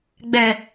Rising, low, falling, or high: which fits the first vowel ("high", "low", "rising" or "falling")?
low